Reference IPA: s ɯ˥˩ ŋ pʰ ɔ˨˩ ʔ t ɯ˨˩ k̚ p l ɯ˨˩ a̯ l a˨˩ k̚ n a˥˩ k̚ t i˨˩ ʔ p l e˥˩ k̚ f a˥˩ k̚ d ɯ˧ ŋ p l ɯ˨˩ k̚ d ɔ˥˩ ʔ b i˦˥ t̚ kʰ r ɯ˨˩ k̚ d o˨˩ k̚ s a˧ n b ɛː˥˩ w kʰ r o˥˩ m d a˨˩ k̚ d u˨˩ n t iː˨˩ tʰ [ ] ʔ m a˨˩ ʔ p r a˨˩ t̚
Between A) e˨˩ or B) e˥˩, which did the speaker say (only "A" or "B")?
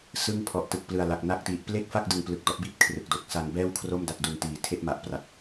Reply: B